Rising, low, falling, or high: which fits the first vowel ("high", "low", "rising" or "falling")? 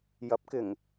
rising